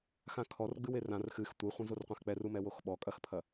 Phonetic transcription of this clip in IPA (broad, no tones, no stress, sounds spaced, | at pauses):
x ã kʰ ɔ r ɡ͡b ɨ w e r ã r x ɨ x tʷ i χʷ ẽ z o r qʷ ã x k͡p ɛ r u m ɛ w o x ɓ ɔ kʼ ɐ x pʰ ɐ